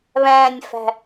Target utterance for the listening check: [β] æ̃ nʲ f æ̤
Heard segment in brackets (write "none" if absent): β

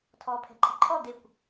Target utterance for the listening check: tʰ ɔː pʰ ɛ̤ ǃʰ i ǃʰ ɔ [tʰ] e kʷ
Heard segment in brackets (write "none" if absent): d̪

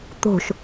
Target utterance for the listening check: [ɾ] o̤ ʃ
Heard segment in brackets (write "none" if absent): t̪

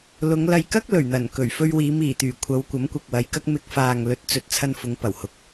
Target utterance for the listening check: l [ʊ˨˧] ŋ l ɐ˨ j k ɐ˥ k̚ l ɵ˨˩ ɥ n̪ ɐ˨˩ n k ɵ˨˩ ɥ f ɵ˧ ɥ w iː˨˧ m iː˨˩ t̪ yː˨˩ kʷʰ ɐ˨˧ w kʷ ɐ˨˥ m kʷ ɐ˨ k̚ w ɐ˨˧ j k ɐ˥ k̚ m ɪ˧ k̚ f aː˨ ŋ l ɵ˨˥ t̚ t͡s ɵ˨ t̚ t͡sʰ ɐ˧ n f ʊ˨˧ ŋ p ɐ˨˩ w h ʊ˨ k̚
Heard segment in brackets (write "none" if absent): ʊ˨˧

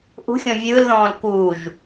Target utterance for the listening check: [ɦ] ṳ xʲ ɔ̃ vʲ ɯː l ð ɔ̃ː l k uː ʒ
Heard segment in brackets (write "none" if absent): ʔ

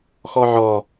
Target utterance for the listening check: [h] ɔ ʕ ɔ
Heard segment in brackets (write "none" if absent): x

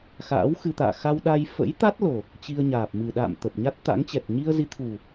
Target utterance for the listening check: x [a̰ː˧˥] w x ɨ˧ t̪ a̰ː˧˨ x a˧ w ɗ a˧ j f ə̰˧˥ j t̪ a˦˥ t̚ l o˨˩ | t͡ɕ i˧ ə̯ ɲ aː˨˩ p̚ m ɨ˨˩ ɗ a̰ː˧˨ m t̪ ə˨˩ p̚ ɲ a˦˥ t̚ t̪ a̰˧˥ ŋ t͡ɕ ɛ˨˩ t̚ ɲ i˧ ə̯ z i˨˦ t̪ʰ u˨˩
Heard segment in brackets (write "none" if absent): a̰ː˧˥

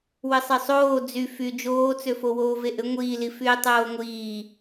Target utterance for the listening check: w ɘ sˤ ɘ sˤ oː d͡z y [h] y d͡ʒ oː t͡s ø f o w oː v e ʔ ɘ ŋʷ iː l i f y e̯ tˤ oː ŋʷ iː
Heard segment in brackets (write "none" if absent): f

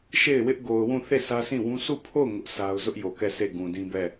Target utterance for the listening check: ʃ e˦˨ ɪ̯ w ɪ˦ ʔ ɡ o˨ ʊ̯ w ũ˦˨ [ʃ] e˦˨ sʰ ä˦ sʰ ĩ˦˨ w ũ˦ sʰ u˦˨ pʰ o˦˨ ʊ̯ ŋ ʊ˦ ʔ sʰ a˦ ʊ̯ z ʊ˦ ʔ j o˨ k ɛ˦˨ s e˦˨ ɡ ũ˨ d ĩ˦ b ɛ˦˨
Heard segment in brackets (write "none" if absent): θ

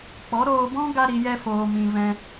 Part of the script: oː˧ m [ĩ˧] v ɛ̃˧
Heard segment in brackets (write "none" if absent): ĩ˧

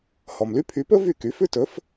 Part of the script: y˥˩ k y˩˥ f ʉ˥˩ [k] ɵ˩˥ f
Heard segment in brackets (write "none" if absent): t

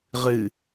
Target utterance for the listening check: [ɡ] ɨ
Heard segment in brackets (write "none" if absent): ʁ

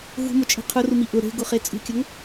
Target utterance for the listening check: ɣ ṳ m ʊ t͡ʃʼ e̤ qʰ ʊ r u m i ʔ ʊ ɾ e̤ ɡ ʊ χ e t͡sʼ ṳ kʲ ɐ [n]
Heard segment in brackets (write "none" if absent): ŋ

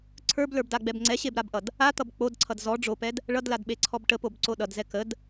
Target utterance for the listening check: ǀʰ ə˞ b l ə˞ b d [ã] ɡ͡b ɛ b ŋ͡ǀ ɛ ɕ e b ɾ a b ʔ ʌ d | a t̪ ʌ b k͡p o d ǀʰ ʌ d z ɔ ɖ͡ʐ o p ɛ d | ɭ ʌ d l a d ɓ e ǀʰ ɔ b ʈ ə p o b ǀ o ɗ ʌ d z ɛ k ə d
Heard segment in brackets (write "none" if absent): a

